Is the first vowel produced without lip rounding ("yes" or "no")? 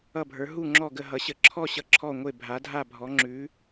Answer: yes